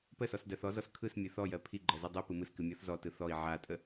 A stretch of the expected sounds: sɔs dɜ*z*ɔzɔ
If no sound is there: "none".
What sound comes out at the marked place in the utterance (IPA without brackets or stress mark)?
θ